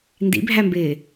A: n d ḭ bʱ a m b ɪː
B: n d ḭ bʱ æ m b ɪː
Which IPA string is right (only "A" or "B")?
B